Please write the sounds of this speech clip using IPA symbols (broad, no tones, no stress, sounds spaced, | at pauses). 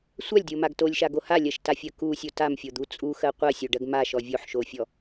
sʷ a lʲ dʲ o m a ɡ t o lʲ ʃ a ɡ o h a lʲ ɜ ʃ t a fʲ ɜ k u sʲ o t a m fʲ o d̪ u t͡sʼ u x ɜ qʷ ɜ sʲ o ɖ ɜ ɡ m a ʃ ɔ vʲ o ħ ʃ o fʲ ɔ